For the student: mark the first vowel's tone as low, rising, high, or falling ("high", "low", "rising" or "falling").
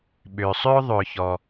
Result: low